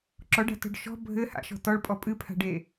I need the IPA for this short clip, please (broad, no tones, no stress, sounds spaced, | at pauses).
ǁ ɔ ɖ a̤ t ɔ̤ ɖ ʃ ɔ̤ bʱ ɘ h a̰ ʃ ɔ̤ t ɔ ɭ pʼ ɔ pʼ ɨ pʰ a̤ ɖ e